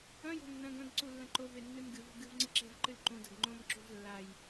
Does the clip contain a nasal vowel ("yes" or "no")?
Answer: yes